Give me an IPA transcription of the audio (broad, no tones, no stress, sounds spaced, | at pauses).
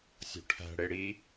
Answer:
sʲ o̤ ʈʰ æ̤ ɽ e ɽ i